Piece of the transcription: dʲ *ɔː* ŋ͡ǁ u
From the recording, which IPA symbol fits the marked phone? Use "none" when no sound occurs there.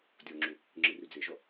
ɔ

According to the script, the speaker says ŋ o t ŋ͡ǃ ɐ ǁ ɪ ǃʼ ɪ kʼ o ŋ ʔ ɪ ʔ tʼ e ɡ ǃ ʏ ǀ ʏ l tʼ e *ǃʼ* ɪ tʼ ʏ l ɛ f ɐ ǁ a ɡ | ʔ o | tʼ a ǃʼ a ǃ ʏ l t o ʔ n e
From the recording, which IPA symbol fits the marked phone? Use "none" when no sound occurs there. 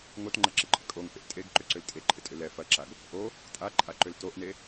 ǃʼ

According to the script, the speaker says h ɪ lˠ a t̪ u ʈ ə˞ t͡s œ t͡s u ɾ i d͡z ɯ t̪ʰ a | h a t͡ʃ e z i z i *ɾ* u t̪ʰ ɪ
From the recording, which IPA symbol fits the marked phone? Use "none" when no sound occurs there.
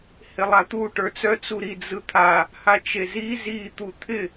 t̪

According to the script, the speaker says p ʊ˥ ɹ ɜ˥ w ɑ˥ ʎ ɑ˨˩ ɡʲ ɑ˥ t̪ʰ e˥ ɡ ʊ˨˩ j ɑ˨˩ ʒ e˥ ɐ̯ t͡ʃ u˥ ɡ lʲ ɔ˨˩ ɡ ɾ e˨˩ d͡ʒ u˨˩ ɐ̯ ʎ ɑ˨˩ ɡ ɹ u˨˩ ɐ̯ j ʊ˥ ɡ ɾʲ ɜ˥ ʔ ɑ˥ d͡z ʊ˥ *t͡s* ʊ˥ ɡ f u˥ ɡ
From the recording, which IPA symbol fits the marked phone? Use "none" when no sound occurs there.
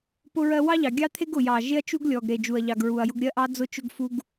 t͡ʃ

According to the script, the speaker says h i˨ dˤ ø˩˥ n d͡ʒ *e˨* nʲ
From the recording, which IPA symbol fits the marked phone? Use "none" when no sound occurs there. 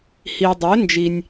i˨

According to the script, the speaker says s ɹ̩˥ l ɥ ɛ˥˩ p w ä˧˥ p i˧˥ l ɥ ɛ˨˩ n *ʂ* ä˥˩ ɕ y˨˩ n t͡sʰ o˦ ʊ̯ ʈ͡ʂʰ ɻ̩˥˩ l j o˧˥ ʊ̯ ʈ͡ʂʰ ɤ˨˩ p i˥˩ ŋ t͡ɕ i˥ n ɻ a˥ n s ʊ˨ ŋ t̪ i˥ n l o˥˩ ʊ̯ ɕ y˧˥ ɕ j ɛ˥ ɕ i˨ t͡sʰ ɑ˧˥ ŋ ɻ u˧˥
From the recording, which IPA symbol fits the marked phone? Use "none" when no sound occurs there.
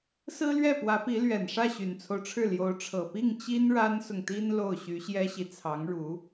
ʂ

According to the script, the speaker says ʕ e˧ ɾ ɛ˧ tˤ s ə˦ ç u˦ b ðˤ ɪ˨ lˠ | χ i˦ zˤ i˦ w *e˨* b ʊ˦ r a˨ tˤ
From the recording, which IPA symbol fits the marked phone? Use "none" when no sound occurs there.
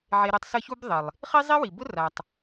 i˨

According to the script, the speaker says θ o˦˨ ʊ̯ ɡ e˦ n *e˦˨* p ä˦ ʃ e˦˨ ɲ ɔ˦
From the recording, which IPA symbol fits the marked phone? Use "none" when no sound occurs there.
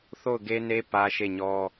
e˦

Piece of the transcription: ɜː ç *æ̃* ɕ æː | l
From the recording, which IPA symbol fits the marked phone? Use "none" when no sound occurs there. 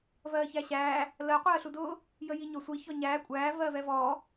æ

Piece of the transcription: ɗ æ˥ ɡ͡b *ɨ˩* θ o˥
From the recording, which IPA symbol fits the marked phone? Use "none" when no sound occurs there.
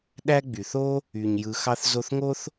y˩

